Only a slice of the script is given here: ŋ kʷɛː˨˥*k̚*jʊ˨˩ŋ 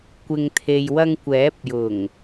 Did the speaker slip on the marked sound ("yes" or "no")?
yes